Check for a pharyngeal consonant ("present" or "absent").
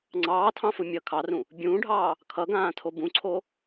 absent